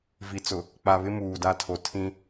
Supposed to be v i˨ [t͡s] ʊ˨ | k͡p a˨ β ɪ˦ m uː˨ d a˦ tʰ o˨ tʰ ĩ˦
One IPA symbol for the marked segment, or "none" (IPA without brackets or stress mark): t͡s